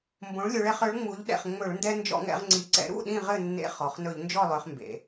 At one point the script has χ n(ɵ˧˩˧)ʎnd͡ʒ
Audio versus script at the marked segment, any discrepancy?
no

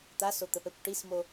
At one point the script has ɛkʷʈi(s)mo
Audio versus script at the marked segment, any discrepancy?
no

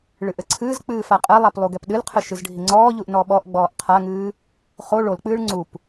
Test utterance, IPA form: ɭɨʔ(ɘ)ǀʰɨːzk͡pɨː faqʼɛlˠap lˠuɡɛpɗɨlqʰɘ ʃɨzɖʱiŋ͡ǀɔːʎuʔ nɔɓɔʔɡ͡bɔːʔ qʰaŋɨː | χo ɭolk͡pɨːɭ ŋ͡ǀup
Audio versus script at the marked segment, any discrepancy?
no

